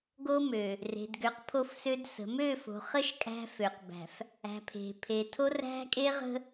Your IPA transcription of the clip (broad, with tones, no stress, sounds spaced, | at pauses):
ɡ o˦ m ø˨ | r e̤˨ d ɡ ø˨˦ q pʰ o˦˨ f s ø˦ d s ə̤˨˦ m ø˦˨ f o̤˨ χ ə˦ ʃ kʼ æ̤˦ f ø˨ q b æ̤˨ f | æ̤˨ pʰ e̤˨ pʰ e˨ tʰ o˦ r æ̤˦ kʼ e˦ ʁ ə̤˦